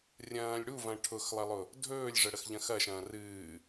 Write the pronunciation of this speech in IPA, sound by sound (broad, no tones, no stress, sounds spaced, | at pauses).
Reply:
rʲ ɐ̃ː lʲ ɽ u v ɐ̃ ʈʰ ʊ x lˠ ɐ lˠ ʊ | dʱ ɵː lʲ ʐ ə ɽ ə x ʎ ɐ̃ x ɐ ʃ ɐ̃ː r ɨː